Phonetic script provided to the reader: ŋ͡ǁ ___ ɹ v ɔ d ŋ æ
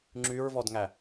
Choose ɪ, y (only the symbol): y